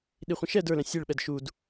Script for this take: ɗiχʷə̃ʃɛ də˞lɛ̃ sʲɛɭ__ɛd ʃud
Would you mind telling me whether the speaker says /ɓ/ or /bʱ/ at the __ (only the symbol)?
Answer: ɓ